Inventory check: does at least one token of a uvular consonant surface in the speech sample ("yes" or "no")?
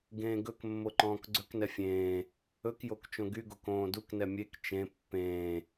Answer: no